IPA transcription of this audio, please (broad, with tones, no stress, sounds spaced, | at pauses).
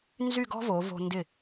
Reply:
n z y˥˧ ɡ ɔ̤˥ v o˩˧ v o̤˧ n d ɪ˧˩